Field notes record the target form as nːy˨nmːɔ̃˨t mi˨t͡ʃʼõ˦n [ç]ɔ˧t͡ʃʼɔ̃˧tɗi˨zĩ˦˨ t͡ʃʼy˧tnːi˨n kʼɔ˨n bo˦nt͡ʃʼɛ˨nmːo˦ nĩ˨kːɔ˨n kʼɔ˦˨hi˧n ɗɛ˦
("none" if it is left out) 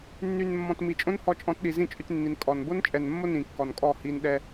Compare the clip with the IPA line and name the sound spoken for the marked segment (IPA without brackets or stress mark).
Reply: h